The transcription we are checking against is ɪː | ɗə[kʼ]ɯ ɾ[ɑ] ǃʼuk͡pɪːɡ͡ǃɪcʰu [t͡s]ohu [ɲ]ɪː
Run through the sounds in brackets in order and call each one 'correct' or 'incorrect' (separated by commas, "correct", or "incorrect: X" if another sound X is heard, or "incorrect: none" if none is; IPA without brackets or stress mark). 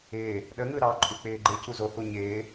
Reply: incorrect: ŋ, correct, incorrect: z, correct